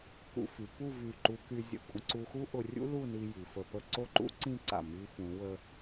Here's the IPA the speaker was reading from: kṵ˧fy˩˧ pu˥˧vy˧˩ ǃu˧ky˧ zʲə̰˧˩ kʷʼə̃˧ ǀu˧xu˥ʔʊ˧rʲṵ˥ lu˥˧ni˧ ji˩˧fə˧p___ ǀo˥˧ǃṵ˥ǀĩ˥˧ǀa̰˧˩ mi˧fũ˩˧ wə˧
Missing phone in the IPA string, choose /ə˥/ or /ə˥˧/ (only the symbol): ə˥˧